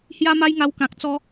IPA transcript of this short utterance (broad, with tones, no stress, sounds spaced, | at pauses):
h j a˦ m a˦ j ŋ a˧ w k ã˨ k̚ t͡s ɔ˧